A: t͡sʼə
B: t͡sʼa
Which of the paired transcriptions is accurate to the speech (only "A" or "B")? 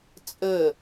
A